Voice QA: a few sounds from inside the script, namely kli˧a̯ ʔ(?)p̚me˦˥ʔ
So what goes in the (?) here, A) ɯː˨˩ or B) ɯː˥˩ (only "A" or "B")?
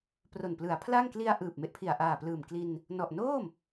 A